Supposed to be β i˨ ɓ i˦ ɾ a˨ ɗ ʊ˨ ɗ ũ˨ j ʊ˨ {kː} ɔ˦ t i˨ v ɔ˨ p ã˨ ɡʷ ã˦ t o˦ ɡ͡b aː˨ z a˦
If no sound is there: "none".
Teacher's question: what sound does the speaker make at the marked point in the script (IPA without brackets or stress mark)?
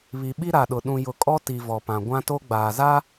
kʼ